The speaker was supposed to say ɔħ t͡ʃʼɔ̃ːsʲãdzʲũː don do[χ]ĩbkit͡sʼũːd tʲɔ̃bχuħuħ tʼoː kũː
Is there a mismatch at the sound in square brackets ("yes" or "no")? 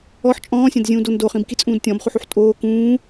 no